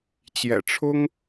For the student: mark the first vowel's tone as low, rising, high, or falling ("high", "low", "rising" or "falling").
low